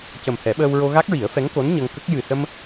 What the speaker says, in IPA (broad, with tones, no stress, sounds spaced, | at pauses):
c ə˨˩ m h ɛ˨˩˦ ɓ əː˧ w ɹ o˧ ɣ a˦˥ k̚ ɹ i˨˩˦ ə̯ f ɛ˧˥ ŋ k o˧˥ n ɲ ə˧ ŋ k ə˦˥ k̚ j ɨ˨˩ s ə˧ m